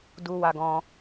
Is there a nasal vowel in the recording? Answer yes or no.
yes